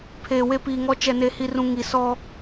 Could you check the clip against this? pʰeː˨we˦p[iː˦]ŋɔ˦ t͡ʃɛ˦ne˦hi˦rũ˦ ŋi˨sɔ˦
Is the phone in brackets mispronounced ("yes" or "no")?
yes